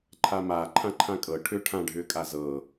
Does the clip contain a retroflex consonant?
yes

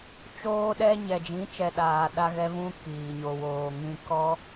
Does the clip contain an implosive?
yes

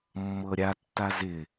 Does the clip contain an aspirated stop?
no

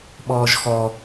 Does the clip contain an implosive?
yes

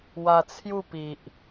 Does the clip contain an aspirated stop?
yes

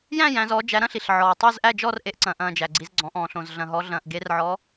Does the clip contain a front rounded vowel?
no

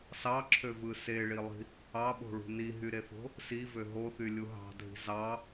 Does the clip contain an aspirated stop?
yes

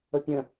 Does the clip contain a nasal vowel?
yes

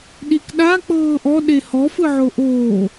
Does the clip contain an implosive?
yes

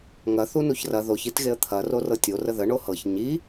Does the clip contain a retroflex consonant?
yes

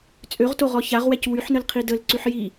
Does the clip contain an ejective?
yes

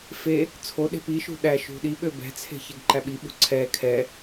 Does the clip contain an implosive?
yes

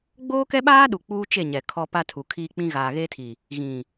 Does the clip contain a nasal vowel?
yes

